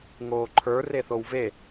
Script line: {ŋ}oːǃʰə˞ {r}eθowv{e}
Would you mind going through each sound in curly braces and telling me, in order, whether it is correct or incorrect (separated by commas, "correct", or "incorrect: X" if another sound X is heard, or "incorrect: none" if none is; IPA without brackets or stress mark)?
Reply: correct, correct, correct